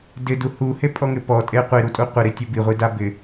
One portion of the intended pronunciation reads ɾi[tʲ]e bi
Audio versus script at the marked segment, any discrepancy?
no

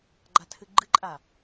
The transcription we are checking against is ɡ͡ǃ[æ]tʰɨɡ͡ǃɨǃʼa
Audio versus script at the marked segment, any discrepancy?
yes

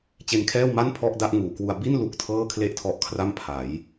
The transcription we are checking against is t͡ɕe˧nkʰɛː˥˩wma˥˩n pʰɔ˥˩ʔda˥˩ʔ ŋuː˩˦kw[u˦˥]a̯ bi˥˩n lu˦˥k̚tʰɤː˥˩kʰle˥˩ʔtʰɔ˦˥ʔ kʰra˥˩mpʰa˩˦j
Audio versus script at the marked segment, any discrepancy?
yes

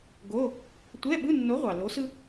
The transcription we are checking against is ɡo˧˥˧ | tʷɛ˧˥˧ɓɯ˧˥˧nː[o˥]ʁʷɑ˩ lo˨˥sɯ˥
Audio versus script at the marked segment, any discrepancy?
yes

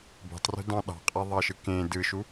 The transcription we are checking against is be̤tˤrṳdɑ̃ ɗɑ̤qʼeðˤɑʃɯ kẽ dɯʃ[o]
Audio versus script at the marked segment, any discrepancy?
yes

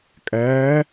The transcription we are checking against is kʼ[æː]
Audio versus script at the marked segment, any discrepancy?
no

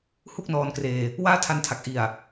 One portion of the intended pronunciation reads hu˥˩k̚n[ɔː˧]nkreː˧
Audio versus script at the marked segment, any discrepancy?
no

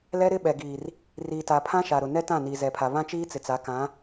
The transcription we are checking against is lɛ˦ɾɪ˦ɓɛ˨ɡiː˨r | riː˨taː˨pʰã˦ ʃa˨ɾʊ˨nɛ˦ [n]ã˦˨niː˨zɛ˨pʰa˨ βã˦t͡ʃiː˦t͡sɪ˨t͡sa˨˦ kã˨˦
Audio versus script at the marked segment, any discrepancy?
yes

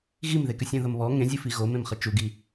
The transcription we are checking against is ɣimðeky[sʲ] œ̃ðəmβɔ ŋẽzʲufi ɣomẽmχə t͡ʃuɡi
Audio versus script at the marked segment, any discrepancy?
no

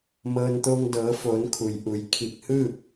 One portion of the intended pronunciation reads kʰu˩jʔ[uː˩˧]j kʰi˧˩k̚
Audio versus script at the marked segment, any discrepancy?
yes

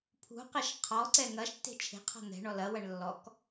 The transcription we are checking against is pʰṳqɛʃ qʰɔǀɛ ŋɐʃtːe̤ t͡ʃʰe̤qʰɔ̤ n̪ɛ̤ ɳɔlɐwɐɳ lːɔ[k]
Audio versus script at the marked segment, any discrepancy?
no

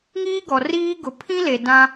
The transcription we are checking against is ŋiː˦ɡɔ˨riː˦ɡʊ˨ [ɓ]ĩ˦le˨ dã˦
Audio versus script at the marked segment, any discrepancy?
yes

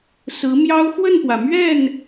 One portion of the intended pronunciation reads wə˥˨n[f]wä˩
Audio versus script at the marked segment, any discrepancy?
yes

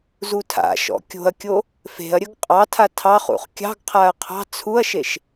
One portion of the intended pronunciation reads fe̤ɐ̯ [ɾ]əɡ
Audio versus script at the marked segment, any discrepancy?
yes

